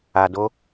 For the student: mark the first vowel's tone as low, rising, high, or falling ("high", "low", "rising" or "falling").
low